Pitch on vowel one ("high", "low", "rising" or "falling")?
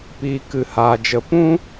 low